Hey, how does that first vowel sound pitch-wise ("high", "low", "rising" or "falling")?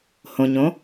low